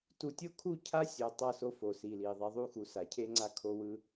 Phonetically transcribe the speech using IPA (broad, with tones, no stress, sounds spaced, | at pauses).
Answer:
t u˨ tʲ o˦ kʰ u˦˨ cʰ a˦ sʲ o˨ tˤ ʌ˦˨ s o˦ f o˨ s i˨ l i˨ ðˤ i˨ ðˤ u˦˨ x u˨ s a˨ cʰ e˦ ŋ͡ǀ a˦ kʰ o˦ w ɯ˦